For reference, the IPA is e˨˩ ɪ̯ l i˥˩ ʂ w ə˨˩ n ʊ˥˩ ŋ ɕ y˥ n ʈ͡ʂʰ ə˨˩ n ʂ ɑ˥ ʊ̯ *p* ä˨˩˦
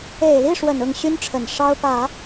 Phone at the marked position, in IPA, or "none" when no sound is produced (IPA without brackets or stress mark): p